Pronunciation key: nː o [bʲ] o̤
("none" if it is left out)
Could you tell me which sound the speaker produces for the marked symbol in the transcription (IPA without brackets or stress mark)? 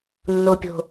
pʲ